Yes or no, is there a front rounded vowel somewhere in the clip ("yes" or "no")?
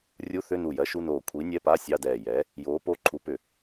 yes